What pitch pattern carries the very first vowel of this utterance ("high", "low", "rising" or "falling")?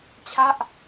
falling